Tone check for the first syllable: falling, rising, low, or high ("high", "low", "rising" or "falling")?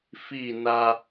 falling